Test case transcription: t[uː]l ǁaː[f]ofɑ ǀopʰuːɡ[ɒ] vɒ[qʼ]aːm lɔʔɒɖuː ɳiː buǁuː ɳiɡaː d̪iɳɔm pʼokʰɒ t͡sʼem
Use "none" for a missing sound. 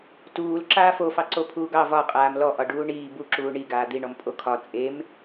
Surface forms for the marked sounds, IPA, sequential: uː, f, ɑ, qʼ

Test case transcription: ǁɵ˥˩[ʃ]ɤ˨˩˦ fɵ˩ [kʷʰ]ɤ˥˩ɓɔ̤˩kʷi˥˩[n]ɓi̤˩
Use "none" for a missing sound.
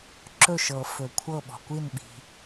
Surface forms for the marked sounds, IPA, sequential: ʃ, kʷʰ, n

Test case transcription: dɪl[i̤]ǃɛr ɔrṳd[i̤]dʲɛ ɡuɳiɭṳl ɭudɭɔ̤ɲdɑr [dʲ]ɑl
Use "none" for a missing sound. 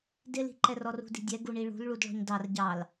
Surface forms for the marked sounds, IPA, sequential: i̤, i̤, ɟ

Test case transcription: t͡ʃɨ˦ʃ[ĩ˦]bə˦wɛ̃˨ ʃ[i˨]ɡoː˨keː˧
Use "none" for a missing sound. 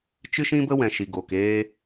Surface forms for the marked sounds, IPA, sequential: ĩ˦, i˨

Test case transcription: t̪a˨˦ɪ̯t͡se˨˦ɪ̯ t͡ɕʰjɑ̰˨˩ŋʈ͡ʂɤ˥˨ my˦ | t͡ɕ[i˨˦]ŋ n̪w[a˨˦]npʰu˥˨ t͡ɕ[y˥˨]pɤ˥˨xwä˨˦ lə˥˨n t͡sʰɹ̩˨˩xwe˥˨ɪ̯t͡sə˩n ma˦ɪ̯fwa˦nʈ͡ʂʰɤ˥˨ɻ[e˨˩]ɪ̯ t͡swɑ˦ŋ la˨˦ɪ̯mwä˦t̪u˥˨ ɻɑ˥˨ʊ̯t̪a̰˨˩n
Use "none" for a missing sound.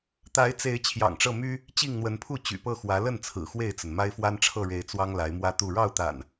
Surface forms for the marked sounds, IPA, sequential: i˥˨, ə˨˦, y̰˨˩, e˨˦

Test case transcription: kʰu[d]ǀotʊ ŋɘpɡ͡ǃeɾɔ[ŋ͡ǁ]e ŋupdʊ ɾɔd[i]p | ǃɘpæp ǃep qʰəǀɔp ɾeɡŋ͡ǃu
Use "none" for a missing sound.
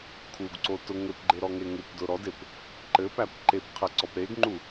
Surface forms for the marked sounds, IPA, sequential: ɡ, ŋ, e

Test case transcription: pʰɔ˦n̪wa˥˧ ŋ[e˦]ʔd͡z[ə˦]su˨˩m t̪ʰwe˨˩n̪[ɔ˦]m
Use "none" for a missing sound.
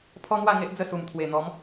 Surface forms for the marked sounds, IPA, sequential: e˦, ə˥˧, ɔ˨˦

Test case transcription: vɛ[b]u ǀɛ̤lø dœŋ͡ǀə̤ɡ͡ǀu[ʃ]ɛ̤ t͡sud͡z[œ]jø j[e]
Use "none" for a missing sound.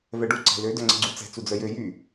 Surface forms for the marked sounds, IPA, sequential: ɖ, t͡s, œ, y

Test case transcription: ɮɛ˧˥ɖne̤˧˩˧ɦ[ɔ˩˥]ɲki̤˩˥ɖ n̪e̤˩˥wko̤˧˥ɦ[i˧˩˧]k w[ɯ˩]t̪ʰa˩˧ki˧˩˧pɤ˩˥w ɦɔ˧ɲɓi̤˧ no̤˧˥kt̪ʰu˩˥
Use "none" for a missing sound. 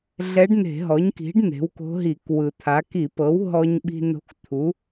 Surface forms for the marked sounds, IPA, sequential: ɔ˩˥, i˧˩˧, ɯ˩

